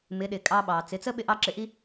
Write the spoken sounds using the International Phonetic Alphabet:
m ɪ˨˦ ɗ ɪ˨ kʼ ɑ˧ ɓ ɑ˨ t͡s ɪ˨˦ t͡s ə˦ ɓ ɪ˧ ʔ ɑ˧ ǁ ɪ˨˦ ʔ i˦

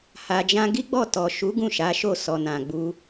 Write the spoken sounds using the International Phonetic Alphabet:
h a˨ d͡ʒ ã˧ ɡ i˦ ɡ͡b ɔ˦˨ t ɔ˨ ʃ u˨˦ ɡ ũ˦˨ ʃ a˨˦ ʃ o˦˨ s ɔ˨ n ã˨ ɡ͡b u˧

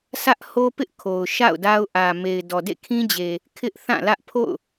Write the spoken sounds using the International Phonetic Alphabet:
s ä˦ ʔ h o˦ p ɪ˦ ʔ kʰ o˨ ʊ̯ ʃ a̰˦˨ ʊ̯ d a˦ ʊ̯ ʔ ä˨ m e˨ ɪ̯ d ɔ˨ d ḛ˦˨ kʰ ĩ˦ d͡ʑ e˨ | kʰ ɪ˦ ʔ θ ã˦˨ l ä˦ ʔ pʰ o̰˦˨ ʊ̯

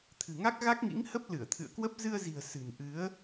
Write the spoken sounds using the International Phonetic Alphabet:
t̪ʰ ɨ̤˨˩ ŋ a˦˥ k̚ ɣ a˦˥ k̚ ŋ ḭ˧˥ ŋ h ə˦˥ p̚ l ɨ˧˩ ə̯ t̪ʰ ɨ̰˧˨ ə̯ k w ə˦˥ p̚ z ɨ˧ ə̯ z i̤˨˩ ə̯ s ɨ̤˨˩ n ʔ ɨ˨˦ ə̯

